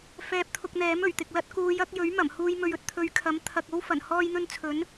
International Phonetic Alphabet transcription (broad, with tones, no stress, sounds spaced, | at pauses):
f ɛː˧ p̚ t̪ʰ ʊ˧ k̚ n̪ ɛː˨˥ m ɵ˨˩ ɥ t̪ ɪ˨ k̚ l ɐ˥ t̚ k uː˨˧ j ɐ˨˥ k̚ j ɵ˨˥ ɥ m ɐ˨˩ m h uː˧ j m ɵ˨ ɥ ɵ˨ t̚ t̪ʰ ɵ˨ ɥ kʰ ɐ˨˥ m t̪ʰ ɐ˨ k̚ o˥ w f ɐ˨˩ n h ɔː˧ j n̪ ɵ˧ n t͡sʰ ɵ˨˥ n